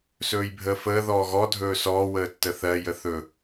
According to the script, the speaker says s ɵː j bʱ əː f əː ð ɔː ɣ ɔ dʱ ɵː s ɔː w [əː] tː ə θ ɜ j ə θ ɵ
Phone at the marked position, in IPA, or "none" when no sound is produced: əː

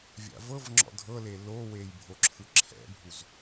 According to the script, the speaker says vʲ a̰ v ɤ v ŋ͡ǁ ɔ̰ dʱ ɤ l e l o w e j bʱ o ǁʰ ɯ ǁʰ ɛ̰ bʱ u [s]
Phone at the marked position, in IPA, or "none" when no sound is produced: z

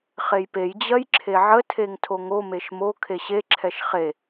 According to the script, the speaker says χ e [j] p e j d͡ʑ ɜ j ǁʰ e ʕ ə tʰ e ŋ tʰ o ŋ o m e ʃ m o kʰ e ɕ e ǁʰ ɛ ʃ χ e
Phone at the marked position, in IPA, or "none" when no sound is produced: j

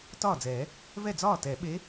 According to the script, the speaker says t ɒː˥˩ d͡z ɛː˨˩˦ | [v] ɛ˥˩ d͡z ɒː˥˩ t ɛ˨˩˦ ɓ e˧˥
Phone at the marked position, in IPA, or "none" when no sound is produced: v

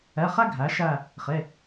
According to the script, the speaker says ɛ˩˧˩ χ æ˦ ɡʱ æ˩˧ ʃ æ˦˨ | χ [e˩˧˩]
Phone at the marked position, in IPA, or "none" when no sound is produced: e˩˧˩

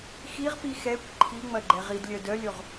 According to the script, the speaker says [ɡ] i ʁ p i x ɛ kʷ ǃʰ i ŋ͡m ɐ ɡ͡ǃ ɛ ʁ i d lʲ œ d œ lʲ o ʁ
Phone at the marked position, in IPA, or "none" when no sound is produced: x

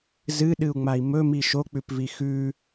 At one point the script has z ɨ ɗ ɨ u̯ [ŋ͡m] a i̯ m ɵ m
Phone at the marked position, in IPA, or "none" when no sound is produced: ŋ͡m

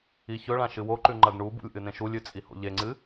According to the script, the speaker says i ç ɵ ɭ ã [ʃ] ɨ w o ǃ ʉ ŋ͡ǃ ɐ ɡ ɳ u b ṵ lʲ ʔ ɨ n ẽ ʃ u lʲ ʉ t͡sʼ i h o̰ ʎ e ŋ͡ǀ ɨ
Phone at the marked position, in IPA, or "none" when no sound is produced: ʃ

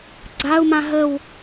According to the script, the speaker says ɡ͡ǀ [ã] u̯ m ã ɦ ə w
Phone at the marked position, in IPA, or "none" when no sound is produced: a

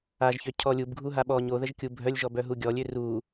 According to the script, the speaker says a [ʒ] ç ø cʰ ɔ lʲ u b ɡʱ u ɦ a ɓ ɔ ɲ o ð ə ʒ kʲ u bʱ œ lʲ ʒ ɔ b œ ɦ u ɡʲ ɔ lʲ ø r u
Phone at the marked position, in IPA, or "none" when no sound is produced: ʒ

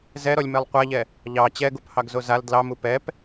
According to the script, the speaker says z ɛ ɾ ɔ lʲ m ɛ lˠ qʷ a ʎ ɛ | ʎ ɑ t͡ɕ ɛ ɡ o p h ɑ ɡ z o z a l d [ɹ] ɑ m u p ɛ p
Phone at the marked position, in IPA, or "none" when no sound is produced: l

